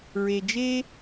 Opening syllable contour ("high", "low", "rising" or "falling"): low